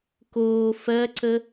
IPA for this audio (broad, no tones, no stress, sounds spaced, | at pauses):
k oː f ɜ ǀ ə